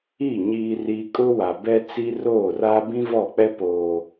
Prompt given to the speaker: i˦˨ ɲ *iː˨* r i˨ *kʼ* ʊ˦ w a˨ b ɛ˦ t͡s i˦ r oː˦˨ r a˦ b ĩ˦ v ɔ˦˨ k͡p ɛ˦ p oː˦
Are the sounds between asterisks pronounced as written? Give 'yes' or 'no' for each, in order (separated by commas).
yes, yes